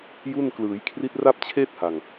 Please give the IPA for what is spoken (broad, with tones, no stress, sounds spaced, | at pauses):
j u˥˩ n k l ɯː˩˦ j kʰ r i˦˥ t̚ r a˥˩ p̚ t͡ɕʰ eː˥˩ t̚ h a˨˩ ŋ